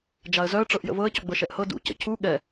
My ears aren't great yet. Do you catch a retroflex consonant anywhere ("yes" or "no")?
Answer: yes